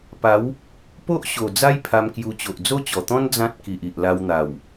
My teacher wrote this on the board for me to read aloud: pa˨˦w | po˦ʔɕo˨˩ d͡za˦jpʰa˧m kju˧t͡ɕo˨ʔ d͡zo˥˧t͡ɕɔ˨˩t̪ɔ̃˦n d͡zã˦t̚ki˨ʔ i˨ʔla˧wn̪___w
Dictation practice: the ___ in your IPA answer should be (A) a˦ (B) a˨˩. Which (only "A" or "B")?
B